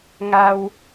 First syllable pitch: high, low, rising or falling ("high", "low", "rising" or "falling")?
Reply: low